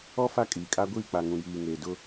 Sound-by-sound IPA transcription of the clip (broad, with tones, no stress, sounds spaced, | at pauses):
ɔ˦ f a˦˨ kʼ iː˨ kʼ a˦ ɡʷ iː˦˨ k͡p a˨ ŋ ũ˨ j iː˨ ŋ eː˨ d ʊ˦